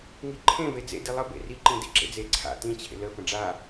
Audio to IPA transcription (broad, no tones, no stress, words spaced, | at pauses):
ŋiǃʰẽ ved͡zḛ dilˠə bḛri ǃĩdḭǁḛd͡ze ǀʰa̰ tĩ t͡ɕʰḛlə fə̃ɖ͡ʐa